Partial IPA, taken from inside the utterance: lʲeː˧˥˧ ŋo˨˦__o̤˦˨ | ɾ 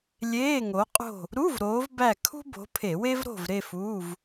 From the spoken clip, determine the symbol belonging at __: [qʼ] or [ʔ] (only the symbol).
qʼ